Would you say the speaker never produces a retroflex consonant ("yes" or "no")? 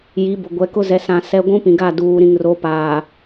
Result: yes